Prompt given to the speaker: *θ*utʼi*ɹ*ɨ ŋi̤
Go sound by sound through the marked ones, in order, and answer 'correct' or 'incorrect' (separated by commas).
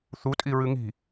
correct, correct